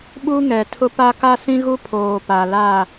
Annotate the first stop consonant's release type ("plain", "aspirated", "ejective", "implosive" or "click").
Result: implosive